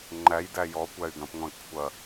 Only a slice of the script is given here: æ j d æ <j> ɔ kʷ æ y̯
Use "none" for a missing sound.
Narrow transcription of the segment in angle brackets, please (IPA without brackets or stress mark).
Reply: j